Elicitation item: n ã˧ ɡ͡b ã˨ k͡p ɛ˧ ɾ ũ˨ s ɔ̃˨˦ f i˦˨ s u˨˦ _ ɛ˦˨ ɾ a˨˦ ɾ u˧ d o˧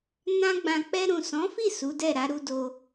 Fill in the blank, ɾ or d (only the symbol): d